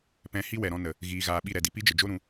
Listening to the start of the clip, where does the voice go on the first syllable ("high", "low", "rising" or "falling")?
rising